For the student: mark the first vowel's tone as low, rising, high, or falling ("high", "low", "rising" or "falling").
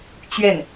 falling